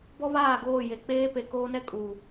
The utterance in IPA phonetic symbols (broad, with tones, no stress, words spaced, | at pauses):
bɔ˦βaː˦˨ɡoː˦˨ je˨k͡peː˦ pe˨koː˦nɛ˦ kʼuː˨